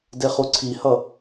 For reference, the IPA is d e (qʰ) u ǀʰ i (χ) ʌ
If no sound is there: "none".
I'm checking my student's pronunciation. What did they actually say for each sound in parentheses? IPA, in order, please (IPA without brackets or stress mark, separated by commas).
χ, h